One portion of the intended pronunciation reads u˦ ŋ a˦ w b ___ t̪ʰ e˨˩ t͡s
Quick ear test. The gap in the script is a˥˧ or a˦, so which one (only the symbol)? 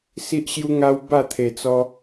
a˥˧